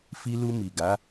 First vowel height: high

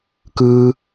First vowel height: high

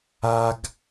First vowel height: low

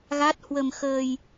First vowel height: low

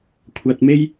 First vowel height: low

